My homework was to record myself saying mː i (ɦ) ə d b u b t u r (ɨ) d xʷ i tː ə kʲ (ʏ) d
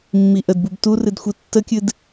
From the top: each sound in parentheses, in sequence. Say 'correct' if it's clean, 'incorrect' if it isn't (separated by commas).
incorrect, correct, incorrect